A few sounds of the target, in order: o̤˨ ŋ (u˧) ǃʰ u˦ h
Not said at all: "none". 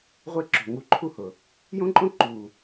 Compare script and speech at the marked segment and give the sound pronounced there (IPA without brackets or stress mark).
u˧